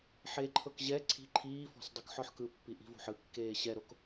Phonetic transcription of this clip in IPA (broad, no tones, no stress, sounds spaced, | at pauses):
ħ e ǃʰ ɤ k ʑ ɛ ǀʰ i̤ ǃʰ iː f ɔ̤ s dˤ o k ħ ɔ ħ k ɯ pː i ʔ i̤ v o̤ ħ ɯ kː eː ɕ ɛ ɾ o k